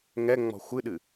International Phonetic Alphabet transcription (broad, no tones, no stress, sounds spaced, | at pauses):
ŋ ɛ ŋ͡m ɔ̤ xʷ ɨ ɗ ɨ